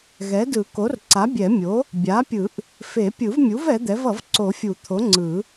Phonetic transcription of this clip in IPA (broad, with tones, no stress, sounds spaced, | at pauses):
ɣ ɛ˩˥ d ɯ˨˩˦ k o˩˥ r ǀ a˩˥ bʲ ɛ˨˩˦ mʲ o˩˥ | bʲ a˩˥ pʲ ɯ˨˩˦ ʔ | f e˨˩˦ pʲ ɯ˨˩˦ v mʲ u˩˥ v ɛ˩˥ d̪ ɛ˩˥ v ʌ˨˩˦ v ǀ o˨˩˦ fʲ u˨˩˦ t̪ʰ o˩˥ ŋ͡ǀ ɯ˨˩˦